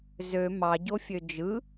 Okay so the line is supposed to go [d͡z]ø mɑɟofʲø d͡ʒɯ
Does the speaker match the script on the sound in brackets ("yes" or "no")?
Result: no